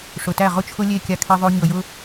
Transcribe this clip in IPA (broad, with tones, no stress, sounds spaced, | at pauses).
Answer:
ʂ ʊ˨ t æ˦˨ ʁ ʊ˦ t͡ʃʰ ʊ˦ lʲ e˦˨ kʲ a˧ kʰ e˧ ðˤ o˧ ɲ ɤ˨ j ʊ˦